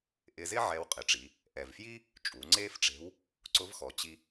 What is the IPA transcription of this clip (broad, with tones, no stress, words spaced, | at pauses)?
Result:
ʔɪ˧zɪ˥ ʕɛː˧wqʼɪː˩ʈ͡ʂi˩˧ | ʔɛ˩vfji˥ | t͡ʃʼu˩˧ŋ͡ǀeː˥fʈ͡ʂe̤˧˥w | ǀʊ˧˥vxɔ˩˧ t͡ɕi˧